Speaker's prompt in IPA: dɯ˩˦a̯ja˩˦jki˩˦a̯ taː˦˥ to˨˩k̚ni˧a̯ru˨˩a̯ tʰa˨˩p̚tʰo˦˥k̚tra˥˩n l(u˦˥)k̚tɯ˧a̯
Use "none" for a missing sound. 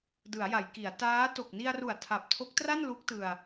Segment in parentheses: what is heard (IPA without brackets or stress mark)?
u˦˥